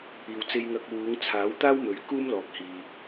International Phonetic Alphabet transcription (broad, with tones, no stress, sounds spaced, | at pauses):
iː˨ w t͡s e˧ j ŋ ɐ˧ k̚ w uː˨˧ ŋ t͡sʰ aː˨˥ w t̪ aː˥ w m ɵ˨˥ ɥ k uː˥ m l ɔː˨ k̚ h iː˨